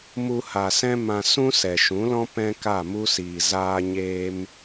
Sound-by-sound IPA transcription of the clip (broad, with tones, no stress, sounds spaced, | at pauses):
m u˧ h a˨ s ɛ̃˦ m ã˧ s ũ˦ s ɛ˨ ʃ ũ˨˦ l ɔ̃˦ p ɛ̃˦ k a˦˨ m u˦ s iː˨ z aː˦ ɲ eː˦ m